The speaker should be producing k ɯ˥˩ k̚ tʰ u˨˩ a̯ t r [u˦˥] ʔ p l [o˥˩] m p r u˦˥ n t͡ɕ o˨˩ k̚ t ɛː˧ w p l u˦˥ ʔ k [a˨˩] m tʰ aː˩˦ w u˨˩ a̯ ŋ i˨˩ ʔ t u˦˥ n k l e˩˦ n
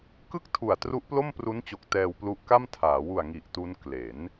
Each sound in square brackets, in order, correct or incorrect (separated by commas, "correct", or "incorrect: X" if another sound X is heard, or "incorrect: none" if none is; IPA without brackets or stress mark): correct, correct, incorrect: a˥˩